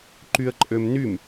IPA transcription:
ǃ y ə̯ ǃʼ ø m n y m

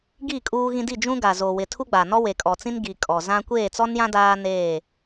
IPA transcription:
ɡ i˦˨ kʼ uː˦ ɣ ĩ˦ d i˦˨ d͡ʒ ũ˦ ɡ a˨ z o˨ w ɪ˨ tʰ u˦ ɡ͡b a˨ n ɔ˦ w e˨ kʼ ɔ˨ t͡s ĩ˦ n ɡ i˨ kʼ ɔ˨ z ã˦ kʷ eː˦˨ t͡s ɔ˦ n j ã˦ d aː˦ n eː˦˨

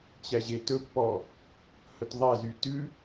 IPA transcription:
t͡ɕ æ ʑ e t ɵ pː ɔ | h ɵ t ðˤ æ z yː t ʉ

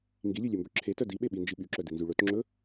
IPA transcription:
ŋ ɡ i lʲ ʉ lʲ ø m b ɵ ǁʰ e t œ d i ɓ e ɓ i n d͡ʒ i ɓ y ǁ œ d i n z y ɭ ɵ t ŋ͡ǁ ɵ

